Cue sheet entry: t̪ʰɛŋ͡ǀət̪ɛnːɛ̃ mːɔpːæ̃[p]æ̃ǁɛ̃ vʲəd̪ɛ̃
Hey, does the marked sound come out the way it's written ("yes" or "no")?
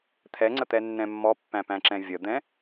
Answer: yes